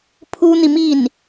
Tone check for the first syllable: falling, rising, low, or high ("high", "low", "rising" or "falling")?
high